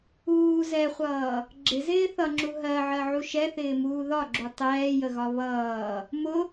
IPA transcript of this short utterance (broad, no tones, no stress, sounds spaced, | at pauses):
uː z ɛ χʷ ʌː | ɡ͡ǁ ɪ z ɪː θ ʌ ŋ͡ǁ u ɦ ɜ ʕ ɜ ʕ u ʃ ɛ θ ɪː m uː ð ɒ ɡ͡ǁ u tˤ ɛː j ə ɣ ɒ β ʌː | m ʊ